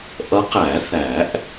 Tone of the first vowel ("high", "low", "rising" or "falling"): rising